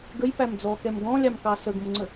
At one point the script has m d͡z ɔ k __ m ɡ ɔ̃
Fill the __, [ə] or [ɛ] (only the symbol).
ɛ